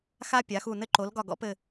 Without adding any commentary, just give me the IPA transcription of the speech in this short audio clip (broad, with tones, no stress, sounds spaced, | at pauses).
x a˥ pʲ a˨˥ x u˦˨ n ɘ˥ ǃ o˨˥ l ɡ ɒ˦˨ ɡ ɔ̰˥ p ɘ˦˨